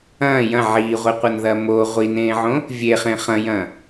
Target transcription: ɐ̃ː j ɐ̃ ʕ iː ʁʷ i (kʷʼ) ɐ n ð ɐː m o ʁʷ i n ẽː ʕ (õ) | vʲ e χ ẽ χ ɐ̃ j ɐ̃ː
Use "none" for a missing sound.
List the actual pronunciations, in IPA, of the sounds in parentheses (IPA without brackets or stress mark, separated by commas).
qʷ, õ